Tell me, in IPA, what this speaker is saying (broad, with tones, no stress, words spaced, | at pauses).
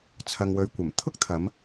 t͡sʰɐ˨ŋwɵ˨˧ɥkʷɐ˨˩m t̪ʰʊ˥k̚t̪ʰɐ˨˧m